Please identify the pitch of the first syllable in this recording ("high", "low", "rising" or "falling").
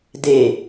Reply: falling